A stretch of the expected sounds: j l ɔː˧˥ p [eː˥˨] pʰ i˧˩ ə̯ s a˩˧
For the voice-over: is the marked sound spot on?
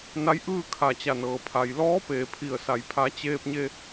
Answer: no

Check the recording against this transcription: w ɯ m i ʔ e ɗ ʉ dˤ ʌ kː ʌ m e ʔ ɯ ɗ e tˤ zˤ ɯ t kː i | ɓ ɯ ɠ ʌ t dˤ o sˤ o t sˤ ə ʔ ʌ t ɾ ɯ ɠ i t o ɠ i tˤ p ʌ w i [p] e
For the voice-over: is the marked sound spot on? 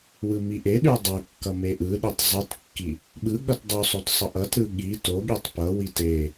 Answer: no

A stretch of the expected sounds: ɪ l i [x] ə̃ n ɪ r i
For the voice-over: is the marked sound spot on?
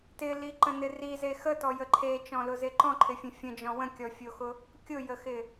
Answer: no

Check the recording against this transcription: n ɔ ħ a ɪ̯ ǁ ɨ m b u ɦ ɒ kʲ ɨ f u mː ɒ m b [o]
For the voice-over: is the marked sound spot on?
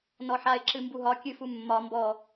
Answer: no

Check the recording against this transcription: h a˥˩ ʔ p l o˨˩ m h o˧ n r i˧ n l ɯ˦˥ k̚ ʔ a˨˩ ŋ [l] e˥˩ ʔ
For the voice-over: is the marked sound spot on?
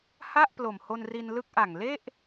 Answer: yes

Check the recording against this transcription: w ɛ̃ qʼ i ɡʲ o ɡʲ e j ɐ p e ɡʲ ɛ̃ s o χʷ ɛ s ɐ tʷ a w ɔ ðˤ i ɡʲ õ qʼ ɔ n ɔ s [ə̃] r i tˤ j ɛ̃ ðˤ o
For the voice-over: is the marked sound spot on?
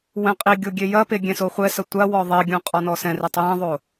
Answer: no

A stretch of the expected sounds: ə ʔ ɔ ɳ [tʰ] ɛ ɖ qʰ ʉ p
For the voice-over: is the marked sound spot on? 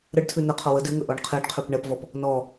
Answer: no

